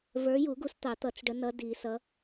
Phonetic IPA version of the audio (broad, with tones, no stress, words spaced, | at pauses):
və˞˨˦ju˨˩˦ɡu˨˦s t̪ɑ˨˩˦t̪ʌ˨˩˦t͡sɖə˨˦nʌ˨˦ di˨˩˦sʌ˨˦